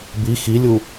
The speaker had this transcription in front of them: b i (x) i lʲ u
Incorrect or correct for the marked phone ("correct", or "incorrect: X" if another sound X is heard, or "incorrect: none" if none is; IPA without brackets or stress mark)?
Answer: correct